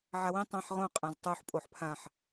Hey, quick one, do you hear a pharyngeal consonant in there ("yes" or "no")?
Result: yes